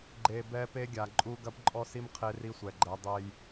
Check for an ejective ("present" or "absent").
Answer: present